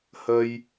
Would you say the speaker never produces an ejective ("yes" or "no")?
yes